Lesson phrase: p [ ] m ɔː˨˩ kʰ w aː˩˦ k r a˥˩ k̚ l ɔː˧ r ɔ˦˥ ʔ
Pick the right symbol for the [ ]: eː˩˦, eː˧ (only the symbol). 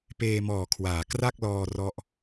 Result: eː˧